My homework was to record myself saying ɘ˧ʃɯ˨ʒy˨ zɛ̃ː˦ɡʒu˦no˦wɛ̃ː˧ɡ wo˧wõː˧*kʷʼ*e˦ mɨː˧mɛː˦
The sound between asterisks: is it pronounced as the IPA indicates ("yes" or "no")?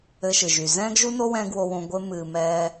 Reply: no